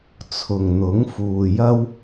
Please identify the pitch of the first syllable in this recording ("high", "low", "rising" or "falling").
low